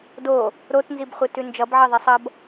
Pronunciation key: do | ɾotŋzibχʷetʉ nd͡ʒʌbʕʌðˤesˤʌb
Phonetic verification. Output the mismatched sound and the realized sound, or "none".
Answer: ŋ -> n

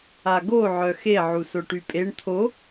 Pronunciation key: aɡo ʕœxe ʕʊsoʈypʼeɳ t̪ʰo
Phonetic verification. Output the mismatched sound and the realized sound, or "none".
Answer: ʊ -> u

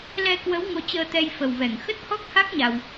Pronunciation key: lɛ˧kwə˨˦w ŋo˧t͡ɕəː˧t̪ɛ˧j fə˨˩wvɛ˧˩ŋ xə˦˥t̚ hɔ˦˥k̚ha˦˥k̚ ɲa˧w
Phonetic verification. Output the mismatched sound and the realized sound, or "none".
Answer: none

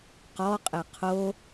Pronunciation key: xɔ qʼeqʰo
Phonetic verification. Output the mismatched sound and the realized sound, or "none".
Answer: x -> q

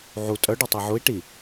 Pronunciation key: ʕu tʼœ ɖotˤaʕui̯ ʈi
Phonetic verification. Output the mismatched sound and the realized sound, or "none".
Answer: none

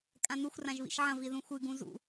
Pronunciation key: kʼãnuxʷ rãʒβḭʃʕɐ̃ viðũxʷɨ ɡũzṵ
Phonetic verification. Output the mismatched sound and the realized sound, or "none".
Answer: none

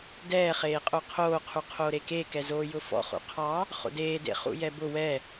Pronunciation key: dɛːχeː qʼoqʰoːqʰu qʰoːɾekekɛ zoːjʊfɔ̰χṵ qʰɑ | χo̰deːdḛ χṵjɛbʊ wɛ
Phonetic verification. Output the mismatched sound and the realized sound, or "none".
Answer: none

